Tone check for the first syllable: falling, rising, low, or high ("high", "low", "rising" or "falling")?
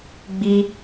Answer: high